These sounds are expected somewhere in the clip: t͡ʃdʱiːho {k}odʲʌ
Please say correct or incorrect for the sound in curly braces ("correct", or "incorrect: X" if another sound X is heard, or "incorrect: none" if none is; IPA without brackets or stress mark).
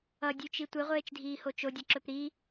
incorrect: t͡ʃ